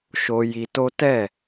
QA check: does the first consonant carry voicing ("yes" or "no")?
no